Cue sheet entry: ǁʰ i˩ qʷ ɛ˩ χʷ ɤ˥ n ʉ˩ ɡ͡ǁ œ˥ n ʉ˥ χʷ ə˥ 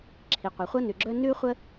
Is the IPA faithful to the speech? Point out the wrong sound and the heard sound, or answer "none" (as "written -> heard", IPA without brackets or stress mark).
none